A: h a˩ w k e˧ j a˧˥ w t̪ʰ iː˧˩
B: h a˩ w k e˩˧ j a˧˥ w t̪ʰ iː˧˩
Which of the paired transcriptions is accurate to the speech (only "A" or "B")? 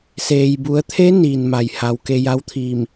A